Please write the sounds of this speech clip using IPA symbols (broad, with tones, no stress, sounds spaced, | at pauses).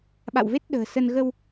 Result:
ɓ a̰˧˨ w v e˦˥ t̚ ɗ ə̤ː˨˩ s ə˧ n ɣ ə˧ w